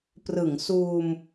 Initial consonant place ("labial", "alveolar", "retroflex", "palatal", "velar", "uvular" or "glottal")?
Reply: labial